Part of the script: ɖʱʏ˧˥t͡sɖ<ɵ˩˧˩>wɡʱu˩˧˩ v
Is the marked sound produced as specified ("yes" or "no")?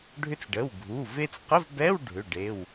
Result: no